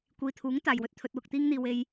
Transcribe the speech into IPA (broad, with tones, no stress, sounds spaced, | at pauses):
kʷ iː˨ t̪ʰ uː˨˥ ŋ t̪ aː˨ j w ɵ˧ t̚ t̪ʰ ɵ˧ t̚ w ʊ˨ k̚ t̪ iː˧ ŋ n̪ iː˨ w e˧ j